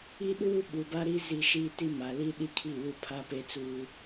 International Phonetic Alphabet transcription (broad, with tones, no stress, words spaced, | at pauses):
i˦ ɗuː˦ɓu˨ba˦ɾi˦ zi˦ʃi˦ ti˦ma˨li˦ ɗi˦ kʰi˦˨wu˦pʰa˦ pe˦t͡suː˦